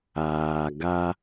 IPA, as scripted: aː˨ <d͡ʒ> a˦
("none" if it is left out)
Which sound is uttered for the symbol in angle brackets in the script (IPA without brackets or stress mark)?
ɡ